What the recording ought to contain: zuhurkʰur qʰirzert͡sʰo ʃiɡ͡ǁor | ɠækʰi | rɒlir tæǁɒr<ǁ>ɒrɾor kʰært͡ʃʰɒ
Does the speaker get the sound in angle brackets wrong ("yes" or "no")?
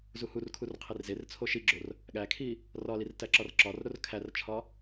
no